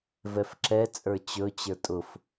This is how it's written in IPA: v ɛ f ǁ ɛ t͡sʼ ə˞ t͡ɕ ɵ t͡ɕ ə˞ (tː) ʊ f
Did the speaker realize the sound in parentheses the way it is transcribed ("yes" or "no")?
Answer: no